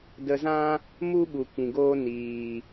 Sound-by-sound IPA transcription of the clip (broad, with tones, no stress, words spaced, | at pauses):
də˧zã˦ | mu˦ɓu˨ kĩ˨ɡoː˦ niː˨